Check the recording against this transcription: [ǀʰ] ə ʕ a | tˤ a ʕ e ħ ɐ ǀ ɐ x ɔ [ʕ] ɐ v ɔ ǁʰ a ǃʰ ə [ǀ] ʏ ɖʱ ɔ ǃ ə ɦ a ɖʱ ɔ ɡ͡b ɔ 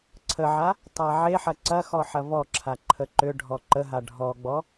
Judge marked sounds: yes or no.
yes, no, no

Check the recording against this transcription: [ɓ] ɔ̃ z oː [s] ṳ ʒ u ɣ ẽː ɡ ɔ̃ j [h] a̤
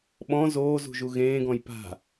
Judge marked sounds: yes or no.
yes, no, no

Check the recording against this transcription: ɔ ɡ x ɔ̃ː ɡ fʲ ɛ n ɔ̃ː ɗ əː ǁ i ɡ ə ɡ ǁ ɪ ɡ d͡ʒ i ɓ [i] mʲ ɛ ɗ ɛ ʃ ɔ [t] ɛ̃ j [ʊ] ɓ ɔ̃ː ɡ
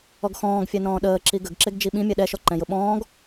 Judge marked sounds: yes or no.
no, no, yes

